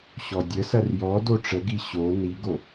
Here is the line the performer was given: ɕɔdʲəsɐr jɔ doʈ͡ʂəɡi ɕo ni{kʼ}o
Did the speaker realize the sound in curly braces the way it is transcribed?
no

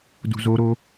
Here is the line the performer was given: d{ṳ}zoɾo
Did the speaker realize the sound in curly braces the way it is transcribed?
yes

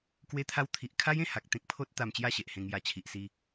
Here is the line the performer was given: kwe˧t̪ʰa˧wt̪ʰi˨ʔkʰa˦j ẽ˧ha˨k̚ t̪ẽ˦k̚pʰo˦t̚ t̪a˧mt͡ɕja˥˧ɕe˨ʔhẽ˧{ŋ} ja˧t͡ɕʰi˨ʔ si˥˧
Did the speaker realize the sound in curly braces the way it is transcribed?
yes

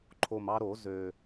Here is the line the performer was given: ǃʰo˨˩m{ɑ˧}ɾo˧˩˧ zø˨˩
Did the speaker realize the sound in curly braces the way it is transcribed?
yes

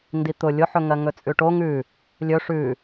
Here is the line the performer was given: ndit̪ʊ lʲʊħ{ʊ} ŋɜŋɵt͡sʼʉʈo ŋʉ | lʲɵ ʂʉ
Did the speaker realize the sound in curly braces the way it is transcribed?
no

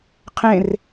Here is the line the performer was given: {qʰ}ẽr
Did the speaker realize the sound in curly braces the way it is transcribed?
yes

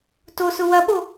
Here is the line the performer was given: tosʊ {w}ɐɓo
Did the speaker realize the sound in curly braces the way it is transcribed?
yes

